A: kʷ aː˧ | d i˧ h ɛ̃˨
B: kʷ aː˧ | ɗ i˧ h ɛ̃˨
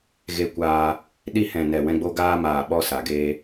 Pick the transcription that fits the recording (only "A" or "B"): B